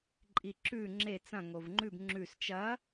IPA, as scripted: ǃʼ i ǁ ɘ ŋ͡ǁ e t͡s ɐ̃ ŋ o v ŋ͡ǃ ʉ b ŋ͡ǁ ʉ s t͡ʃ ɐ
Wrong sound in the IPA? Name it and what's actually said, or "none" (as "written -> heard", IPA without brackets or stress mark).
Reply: ɘ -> ʉ